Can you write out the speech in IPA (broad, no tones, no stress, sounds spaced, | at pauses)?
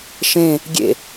ʃ ẽ | ɡʲ ḛ